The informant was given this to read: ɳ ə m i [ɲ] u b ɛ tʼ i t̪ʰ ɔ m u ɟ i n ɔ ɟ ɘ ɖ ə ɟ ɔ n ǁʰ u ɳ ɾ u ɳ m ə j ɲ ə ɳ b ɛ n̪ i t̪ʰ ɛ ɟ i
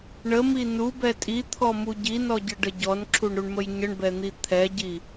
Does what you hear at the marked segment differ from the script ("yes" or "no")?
yes